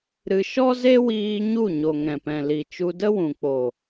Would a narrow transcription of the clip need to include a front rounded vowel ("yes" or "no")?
no